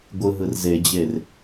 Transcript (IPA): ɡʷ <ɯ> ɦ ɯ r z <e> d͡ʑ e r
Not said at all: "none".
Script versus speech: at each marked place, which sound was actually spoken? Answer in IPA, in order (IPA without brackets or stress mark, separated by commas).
ɯ, e